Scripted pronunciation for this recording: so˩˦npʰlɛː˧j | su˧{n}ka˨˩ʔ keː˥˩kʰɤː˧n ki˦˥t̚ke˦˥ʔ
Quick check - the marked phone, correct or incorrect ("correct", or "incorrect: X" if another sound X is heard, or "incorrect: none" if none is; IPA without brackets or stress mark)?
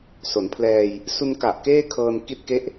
correct